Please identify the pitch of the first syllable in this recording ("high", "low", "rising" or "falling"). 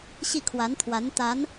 falling